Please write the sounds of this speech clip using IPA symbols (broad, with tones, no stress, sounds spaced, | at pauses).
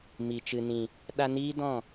m i˨ t͡ʃ ɨ˨ n ĩ˨ | ɗ a˧ n iː˦ d ɔ̃˦˨